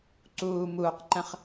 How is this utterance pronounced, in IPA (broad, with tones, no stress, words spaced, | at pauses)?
ǀuː˨muː˨qǃə̃˦χ